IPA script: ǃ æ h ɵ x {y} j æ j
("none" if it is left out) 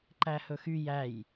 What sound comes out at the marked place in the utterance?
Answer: y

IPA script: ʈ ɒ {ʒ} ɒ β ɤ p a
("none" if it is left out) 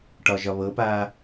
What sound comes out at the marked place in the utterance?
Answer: ʒ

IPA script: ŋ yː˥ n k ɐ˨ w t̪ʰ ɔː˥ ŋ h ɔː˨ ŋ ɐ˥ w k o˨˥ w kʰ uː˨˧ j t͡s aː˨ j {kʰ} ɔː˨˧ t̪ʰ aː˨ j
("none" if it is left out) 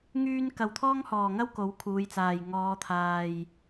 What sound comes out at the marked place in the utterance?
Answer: ŋ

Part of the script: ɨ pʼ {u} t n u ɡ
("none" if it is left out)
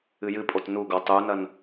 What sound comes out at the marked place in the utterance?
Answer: o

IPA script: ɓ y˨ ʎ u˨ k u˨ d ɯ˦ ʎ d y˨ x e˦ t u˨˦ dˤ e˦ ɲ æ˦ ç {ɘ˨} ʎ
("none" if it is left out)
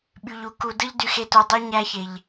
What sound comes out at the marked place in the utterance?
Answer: e˨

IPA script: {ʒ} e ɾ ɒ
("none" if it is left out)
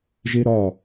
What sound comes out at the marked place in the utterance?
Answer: ʒ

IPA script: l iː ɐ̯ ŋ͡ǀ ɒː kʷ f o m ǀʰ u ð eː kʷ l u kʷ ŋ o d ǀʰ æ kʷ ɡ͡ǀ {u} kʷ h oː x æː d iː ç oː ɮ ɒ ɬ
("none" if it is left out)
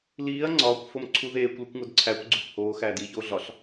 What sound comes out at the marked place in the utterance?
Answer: u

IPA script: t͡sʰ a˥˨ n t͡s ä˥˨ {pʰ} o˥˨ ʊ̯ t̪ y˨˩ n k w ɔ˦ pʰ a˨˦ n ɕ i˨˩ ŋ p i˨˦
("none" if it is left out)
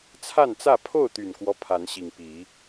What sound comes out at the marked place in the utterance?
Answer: pʰ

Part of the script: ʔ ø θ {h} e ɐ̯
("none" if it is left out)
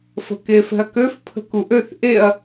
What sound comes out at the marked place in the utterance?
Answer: ʔ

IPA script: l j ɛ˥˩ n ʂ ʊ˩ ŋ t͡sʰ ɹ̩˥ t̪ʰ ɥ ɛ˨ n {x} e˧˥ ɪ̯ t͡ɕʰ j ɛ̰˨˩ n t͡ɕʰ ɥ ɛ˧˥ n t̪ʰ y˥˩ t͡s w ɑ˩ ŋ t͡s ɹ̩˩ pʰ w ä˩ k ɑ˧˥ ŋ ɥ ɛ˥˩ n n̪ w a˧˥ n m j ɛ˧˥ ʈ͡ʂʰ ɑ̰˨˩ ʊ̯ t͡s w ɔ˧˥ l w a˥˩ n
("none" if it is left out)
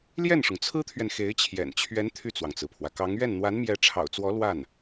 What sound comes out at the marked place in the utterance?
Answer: x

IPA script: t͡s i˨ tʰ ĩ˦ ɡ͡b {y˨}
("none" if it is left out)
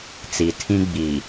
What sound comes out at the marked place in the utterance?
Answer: i˨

